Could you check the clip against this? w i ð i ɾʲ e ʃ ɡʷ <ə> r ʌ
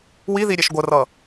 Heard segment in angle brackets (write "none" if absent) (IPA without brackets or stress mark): ə